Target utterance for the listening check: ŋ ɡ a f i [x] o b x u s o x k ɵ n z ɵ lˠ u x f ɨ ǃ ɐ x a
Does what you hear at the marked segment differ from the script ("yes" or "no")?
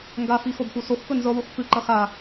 no